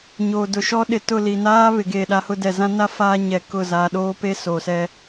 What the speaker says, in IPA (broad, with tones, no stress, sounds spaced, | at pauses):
ɲ oː˨ d ʊ˨ ʃ ɔ˦ ɗ ɪ˨ t ʊ˦˨ l i˨ n aː˦ β ɪ˨ ɡ e˦˨ ɗ a˦ h ʊ˦ d ɛ˨ z ã˦ n a˦ f aː˦ ɲ ɛ˨ k ʊ˦˨ z aː˨ ɗ oː˦ p e˦ s oː˨ s ɛ˦